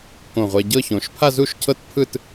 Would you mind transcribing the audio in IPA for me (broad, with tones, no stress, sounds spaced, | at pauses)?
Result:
k õ˧˩ ʁʷ ɛ˧ ɟ ɤ˥˧ ç õ˩˧ ʃ pʰ a˥˧ z u˥˧ ʃ cʰ ɤ˥˧ t pʰ ɯ˥˧ t